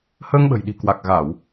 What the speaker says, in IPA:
həː˧ŋɓə̤˨˩jɗi̤˨˩ kwa˨˩k̚ɣa˧˩˨w

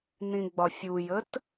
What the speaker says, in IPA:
nĩɡ͡bɒfʲujət

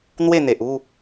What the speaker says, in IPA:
n̪we˥˧n̪e˨ʔu˥˧

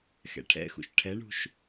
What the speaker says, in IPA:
xɛ̰ʈʰɛ̰xṵʃ ʈʰɛɳṳʃ

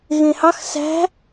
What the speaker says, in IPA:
ɣẽhɑx sæ̤

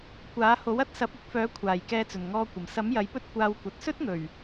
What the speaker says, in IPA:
kʷaː˨˥ ho˨˥wɐ˥t̚sɐ˨˥p̚ ɪ˨k̚fœː˨˥kʷʰaː˨˩j kɛː˧t͡sɵ˨˩nŋɔː˧kʷɐ˨˩m sɐ˨˥m jɐ˨˥jpɵ˥t̚ kʷaː˧wkʷɐ˨t̚ sɵ˥t̚ŋɵ˨˩ɥ

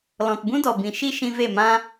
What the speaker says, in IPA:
lɔ̃˨tbũ˦dɔ˨bĩ˨ ʃi˦ ʃĩ˧ve˦˨mã˦

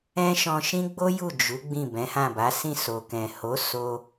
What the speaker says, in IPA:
ɛ̃˦ʃɔ̃˧ ʃĩ˦ɡ͡bo˦ju˦˨ d͡ʒu˨˦ ɡ͡bĩ˦˨bɛ̃˨˦hã˦˨ba˨˦ sĩ˦˨ so˨kɛ̃˨ ho˨˦ so˧

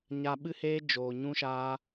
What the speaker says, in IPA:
ɲa˦ ɓɨ˦heː˦ d͡ʒoː˧ɲũ˦ʃaː˦

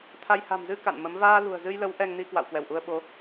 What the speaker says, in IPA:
t̪ʰa˧j ha̤˨˩mzɨ˧ ka̰˧˨nmə˨˦m vaː˧lṳ˨˩ə̯zɨ˧jlə˨˦w ʔɛ˧ŋni˧kwa̰˧˨w kwɛ˧˩wʔu˧ə̯ɓo˨˦

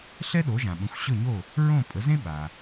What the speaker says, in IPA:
ɬɛ˥ɗo˩˥ʒã˩ɓə̃˩˥xʷ ɕɵ˥˩ɲo˥˩ | ɹõ˥˩ pʼə˩˥zẽ˥ ɓa˩

